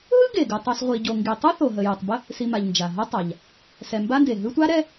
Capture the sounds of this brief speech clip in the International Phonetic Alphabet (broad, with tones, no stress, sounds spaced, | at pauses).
ɦ ɯ˥ ɡ e˩ ɡ ɯ˩ tˤ o˨ s ʁʷ i˨ ɟ o˨ ŋ ɡ i˨ tˤ ɯ˥ θ o˨ ɦ ə˨ j ɛ˨ tˤ b ə˥ | s i˨ m a˩ ʎ n d͡ʒ a˩ ɦ o˥ tˤ a˩ ʎ | s ɛ˨ m b a˦ n d e˩ ɦ ɯ˦ tʷ a˥ ɾ ɛ˥